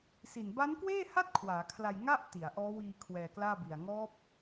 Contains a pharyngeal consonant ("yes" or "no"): no